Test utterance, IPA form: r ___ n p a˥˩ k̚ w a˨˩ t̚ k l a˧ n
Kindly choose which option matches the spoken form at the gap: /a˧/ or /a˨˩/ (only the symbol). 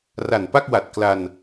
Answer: a˨˩